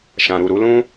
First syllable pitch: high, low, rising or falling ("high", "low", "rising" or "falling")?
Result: low